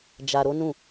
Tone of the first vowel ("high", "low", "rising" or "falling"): low